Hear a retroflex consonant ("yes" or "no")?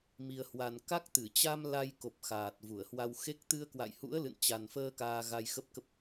no